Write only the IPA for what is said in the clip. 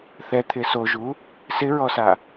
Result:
θ ɛ t̪ʰ ɪ s o ʒ u | s ɪ ɹ ɔ s a

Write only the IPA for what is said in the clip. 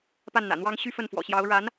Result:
p a˥˩ n n̪ ä̰˨˩ n̪ w ɑ˥ ŋ ɕ y˥ f ə˥˩ n f w ɔ̰˨˩ ɕ j ɑ˧˥ ʊ̯ ɻ a˧˥ n

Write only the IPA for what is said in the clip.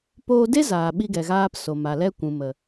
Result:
p oː˧ d e˦ z aː˨ ɓ i˧ ɡ ɛ˨ ɣ aː˧ p s o˨ m a˨ l ɛ˦ kʷ ũ˨ m ə˨

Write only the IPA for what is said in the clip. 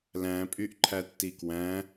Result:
l æ̃ pʼ y ʔ ǃʰ æ tː i k w æ̃

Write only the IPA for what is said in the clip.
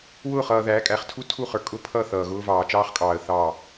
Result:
w ʊː˦˨ χ ʌː˨ ð æː˨˦ kʼ æ˨ χ tʰ u˦ tʰ u˦˨ χ ə˞˨ kʼ ʊ˦ pʰ ʌ˦˨ θ ʌː˨ ɣ ʊː˦ v ɑː˨ t͡ʃ ɑː˦ χ kʼ ɑː˨ ə̯ θ ɑ˦˨

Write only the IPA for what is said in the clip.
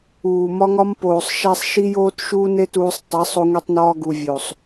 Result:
uː˨ m ɒ˦ ŋ ɒ˦ m p oː˨ sˤ ʃ æ˦ sˤ ʃ i˦ j oː˦ t ʃ uː˦ n e˦ t uː˧ sˤ tˤ e˨˦ sˤ o˧ ŋʷ e˧ tˤ n ɒː˧ ɡ u˨ vʲ o˨ sˤ

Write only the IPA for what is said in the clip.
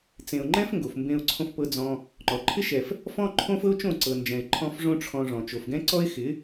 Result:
t͡s ẽ˨ ʊ̯ ŋ͡ǃ ɛ̃˦ f ŋ ɡ o˨ f m b ẽ˧ ʊ̯ ǀʰ õ˧ f p ɤ˧ d͡z ɔ̃˧ | ŋ͡ǃ ɔ˨ ǃʰ ɪ˦ ʃ ɛ˨ f | f ɔ̃˦ ǃʰ õ˦ f ɤ˦ ʊ̯ t͡ʃ õ˦˨ ǀ ɤ˨ n d͡ʒ ɛ̃˨ ɪ̯ ǃʰ ɔ̃˦ f ʐ õ˦ ʈ͡ʂʰ ɔ̃˧ ʐ ɔ̃˨ t͡ʃ o˨ f ɡ ɛ̃˦ ǀ ɔ˦ ɪ̯ x ɪ˨˦

